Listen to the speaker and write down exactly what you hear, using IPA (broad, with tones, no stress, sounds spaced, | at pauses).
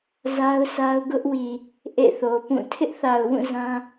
z a˦ ʊ̯ sʰ a˦ ʊ̯ ɡ ʊ˦ ʔ w i˨ | ʔ ḛ˦˨ θ o˨ p ũ˦˨ tʰ ɪ˦ ʔ θ a˨ ʊ̯ w ũ˦˨ z ã˦